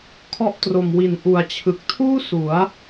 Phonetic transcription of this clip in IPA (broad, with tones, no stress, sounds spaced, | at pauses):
kʰ ɔ˥˩ ʔ t r o˨˩ m w i˨˩ n ʔ u˨˩ a̯ t͡ɕʰ ɯ˨˩ k̚ tʰ uː˥˩ s u˩˦ a̯